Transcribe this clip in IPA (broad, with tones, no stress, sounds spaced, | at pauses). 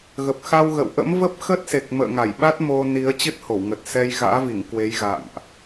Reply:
ɣ ə˨˩ p̚ x a˧ w ɣ ə̰˧˨ w ʔ ə̰˧˥ m v ə˦˥ p̚ x ə˦˥ t̚ s e˨˩ k̚ m ə̰ː˧˨ ŋ a˧˩ j ɓ a˦˥ t̚ m o˧ n i˨˦ ə̯ t͡ɕ ɨ˦˥ t̚ h o˧˩ w ŋ ə˨˩ t̚ s ɛ˧ j ɣ a̰ː˧˥ v i˧˩ ŋ k w e˨˦ j ɣ a̰˧˨ ŋ ʔ